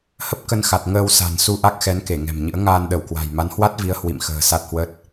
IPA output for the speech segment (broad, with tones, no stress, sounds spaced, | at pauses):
h ə˦˥ p̚ k ə˧ n x a˨˩ t̚ ŋ əː˧ w s a̤˨˩ n s u˧ ʔ a˦˥ k̚ x ɛ˨˦ n k e˧˩ ŋ ɛ̤˨˩ m ɲ ɨ̰˧˥ ə̯ ŋ aː˧ n ɗ ə˧˩ w k w a̤˨˩ j m a˨˦ n h w a˦˥ t̚ v i˨˦ ə̯ h w ḭ˧˨ m x ə̤ː˨˩ s a˦˥ t̚ h w ə˦˥ t̚